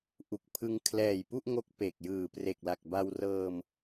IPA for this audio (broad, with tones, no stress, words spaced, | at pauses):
ʔu˨˩k̚pʰɯ˧ŋ kʰlɛː˨˩jpu˥˩ʔŋo˦˥k̚ pe˨˩k̚ jɯː˨˩pre˨˩k̚la˨˩k̚ba˧w rɤː˧m